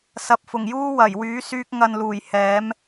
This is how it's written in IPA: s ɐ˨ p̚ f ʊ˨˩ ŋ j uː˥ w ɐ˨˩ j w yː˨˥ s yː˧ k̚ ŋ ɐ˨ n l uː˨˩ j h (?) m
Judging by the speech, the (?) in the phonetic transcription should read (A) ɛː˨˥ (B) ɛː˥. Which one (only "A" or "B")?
A